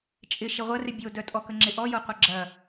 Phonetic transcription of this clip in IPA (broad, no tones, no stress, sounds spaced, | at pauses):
t͡ʃʼ ɪ ʃ ɪ ʁʷ ɐ r ɪ bʲ o d œ tʼ ɔ k ə ŋ͡ǁ ɪ ʔ ɔ j o qʷ ɐ ɡ͡ǁ ɐ